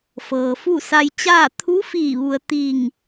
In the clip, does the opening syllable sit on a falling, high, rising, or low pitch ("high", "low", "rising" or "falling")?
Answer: low